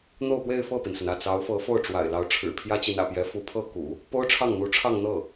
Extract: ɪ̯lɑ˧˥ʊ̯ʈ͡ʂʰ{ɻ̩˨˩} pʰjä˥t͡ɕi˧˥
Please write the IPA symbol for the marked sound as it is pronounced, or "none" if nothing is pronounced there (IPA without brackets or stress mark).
ɻ̩˨˩